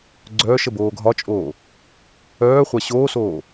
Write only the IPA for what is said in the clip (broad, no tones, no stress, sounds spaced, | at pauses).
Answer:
ɡ͡ǀ œː ʃ ə b oː ɡʱ ɒ t͡ʃʼ oː | œː χʷ a ɕ oː s oː